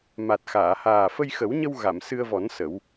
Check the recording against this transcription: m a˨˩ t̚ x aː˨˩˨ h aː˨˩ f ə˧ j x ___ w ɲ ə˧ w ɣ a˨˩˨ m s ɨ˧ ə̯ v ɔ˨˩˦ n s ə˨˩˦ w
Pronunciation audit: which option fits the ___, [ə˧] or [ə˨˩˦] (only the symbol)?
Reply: ə˨˩˦